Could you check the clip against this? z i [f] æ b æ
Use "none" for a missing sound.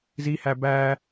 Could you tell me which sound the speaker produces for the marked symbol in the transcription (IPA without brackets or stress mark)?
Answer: h